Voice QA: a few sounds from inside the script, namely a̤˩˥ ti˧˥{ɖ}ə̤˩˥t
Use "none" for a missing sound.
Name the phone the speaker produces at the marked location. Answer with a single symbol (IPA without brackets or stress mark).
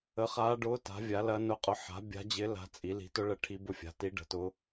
ɖ